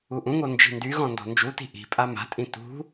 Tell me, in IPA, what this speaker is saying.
uʔũŋo nd͡ʒi̤ndyɣɔ̃ ndɔ̤nd͡ʒuti̤ ʔi̤ pʼama̤tʼĩ tṳ

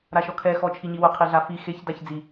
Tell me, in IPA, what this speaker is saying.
ɾaʃɔkʰɛ xɔt͡ʃʰiɲiwʊ qʰiɮafi xeç daçd͡zi

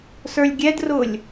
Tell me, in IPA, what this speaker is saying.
sə˞lʲɡʲɛdrʊːlʲ

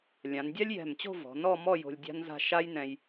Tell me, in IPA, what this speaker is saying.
lʲã˩˧ndʲa˥lʲjɛ̤˧˩mt͡ɕo̤˥˧ vɔ̤˩˧nɔ˥˧mɔ˥˧ jo̤˧lʲdʲa̤˥nza̤˥˧ ʃa˥jnɛ̃˧j

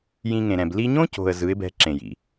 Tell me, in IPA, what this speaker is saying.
jĩ˧ŋẽ˨ɾɛ̃˨b li˧ɲõ˦co̤˨ə̯ zɯ˨˦ɪ̯bɛ̤˧ ǁẽ˨jḭ˨

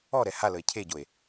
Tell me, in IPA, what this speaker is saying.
ɔɾɛ haləe̯ cʰeɟoe̯

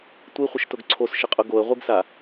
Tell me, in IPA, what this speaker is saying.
tʷiχʷɪʃtʊɡ ǀʰosʃɪqʼʊ ɡoə̯ʁʷiɡsa

